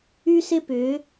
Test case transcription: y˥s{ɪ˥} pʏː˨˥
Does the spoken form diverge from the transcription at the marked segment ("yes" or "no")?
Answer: no